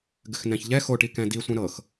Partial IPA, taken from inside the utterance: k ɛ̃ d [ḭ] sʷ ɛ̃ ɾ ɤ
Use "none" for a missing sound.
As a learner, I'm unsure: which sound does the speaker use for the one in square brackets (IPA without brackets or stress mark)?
i